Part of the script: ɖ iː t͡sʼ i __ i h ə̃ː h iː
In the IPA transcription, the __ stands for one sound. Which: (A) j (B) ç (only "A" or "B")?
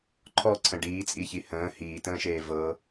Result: B